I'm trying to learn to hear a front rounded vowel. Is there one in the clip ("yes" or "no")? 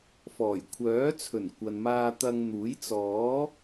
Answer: yes